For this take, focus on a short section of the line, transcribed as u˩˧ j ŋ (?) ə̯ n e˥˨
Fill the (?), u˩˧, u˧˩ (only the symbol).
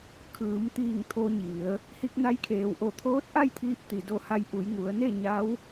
u˩˧